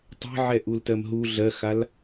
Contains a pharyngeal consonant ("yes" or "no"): yes